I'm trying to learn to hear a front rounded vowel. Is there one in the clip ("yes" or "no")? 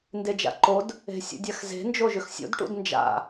yes